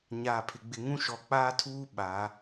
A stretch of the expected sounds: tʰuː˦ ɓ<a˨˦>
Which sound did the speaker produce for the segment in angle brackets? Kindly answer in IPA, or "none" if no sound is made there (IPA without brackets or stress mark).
a˨˦